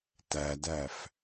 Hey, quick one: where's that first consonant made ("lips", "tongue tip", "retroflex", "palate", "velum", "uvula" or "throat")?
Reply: tongue tip